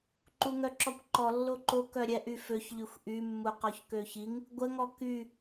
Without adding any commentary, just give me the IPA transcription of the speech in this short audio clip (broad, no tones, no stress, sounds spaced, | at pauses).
ǃ u ŋ œ ǁ ɔ kʷ ǃ ɔ lː o ǃ o k œ ɾʲ ɛ ʔ y f ø ç ʎ y xʷ ʔ y mː u q ɔ ç k ø ç i ŋ | ɡʷ ə ŋ ɔ k y